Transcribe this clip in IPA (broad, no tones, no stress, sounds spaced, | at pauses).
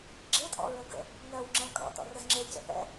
ɡ͡ǁ e tʼ ɔ̰ ɹ ə ɡ ə̰ | ŋ ɜ w ŋ͡ǁ ɛ̃ kʼ ɔ̰ t ɔ̰ r ə z ŋ͡ǁ e c ə̰ θ ɛ̰